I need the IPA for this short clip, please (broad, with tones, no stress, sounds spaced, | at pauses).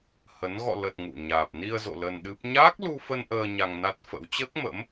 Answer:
h ə˨˦ n ɣ ɔ̰˧˨ l ə˨˩ t̚ ŋ ṵ˧˨ ɲ aː˨˩ p̚ n i˧ ə̯ z o̰˧˨ l ə˧ n ɗ ɨ˦˥ p̚ ɲ aː˦˥ k̚ l u˧ f ə˧ n ʔ əː˧ ɲ a˧ ŋ n a˦˥ t̚ f ə̰˧˥ w t͡ɕ əː˦˥ k̚ m ə̰˧˥ m